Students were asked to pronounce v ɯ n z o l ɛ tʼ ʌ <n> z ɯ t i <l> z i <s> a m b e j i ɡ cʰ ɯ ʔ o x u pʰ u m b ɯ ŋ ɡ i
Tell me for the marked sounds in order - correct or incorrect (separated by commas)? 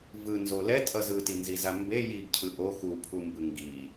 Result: incorrect, incorrect, incorrect